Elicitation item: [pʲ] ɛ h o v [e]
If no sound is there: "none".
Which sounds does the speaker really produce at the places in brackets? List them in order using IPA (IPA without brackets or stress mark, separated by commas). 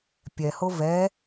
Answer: pʲ, ɛ